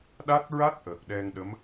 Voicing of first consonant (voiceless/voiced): voiced